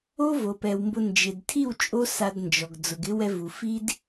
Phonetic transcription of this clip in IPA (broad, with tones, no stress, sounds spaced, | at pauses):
o˦ v o˨ p ɛ˨ w m b ʊ˧ n d͡ʒ ɪ˨ d tʰ i˦˨ w t͡ʃʼ o˦ s a˧ d n d͡ʒ ɔ˨ ɡ d͡z ʊ˨ ɡ ɪ˦ w ɛ˧ v u˨ f i˦ d